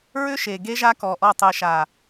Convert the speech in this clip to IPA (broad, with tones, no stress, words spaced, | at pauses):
ɹʏ˦ʃe˨ɡe˦ʒa˦ kɔ˨ʔɔ˦˨ tˤɨ˨ʃa˨